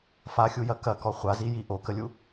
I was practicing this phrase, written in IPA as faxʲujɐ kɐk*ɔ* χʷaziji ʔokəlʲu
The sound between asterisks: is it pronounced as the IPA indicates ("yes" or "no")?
yes